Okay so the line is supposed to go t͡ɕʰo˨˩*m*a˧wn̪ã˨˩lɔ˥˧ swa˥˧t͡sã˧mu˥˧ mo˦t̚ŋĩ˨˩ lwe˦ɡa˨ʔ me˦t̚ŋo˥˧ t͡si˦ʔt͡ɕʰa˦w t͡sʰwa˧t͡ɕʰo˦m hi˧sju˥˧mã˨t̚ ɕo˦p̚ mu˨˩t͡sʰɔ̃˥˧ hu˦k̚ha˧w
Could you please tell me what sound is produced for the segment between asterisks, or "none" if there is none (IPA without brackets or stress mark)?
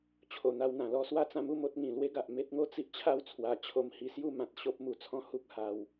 n̪